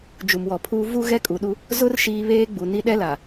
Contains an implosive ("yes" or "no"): yes